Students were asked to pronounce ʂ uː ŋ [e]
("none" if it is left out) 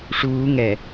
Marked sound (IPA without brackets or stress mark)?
ɛ